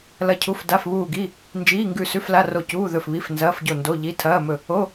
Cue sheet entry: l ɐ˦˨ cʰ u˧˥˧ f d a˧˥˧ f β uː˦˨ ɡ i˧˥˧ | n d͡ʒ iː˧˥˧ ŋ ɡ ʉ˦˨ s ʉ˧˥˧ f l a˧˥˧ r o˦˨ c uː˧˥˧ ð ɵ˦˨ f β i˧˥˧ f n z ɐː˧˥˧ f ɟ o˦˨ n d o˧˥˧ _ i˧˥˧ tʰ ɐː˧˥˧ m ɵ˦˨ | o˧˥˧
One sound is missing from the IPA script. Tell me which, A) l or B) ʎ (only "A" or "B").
B